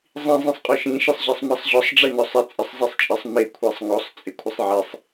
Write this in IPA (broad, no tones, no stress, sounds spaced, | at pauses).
zˤ ĩ zˤ ĩ sˤ qʼ ɔ ʃ ĩ ʃ ɪ sˤ ʑ ɛ sˤ m ɛ sˤ ʑ ɔ sˤ ɖ͡ʐ e n ɔ sˤ ɪ t͡sʼ ɪ sˤ zˤ e sˤ t͡ʃʼ ɪ sˤ m e kʷʰ e sˤ ŋ ɔ sˤ t͡sʼ ɪ kʷʰ ɪ sˤ ʕ e sˤ